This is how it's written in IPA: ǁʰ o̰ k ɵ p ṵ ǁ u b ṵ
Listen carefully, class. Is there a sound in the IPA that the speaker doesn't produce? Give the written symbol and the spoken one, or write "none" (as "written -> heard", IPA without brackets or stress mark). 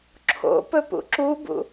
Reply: k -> p